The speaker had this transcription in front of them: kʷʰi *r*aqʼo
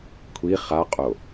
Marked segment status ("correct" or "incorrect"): incorrect